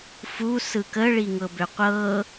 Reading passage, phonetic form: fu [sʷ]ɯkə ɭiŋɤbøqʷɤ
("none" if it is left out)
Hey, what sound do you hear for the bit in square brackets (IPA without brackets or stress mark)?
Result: s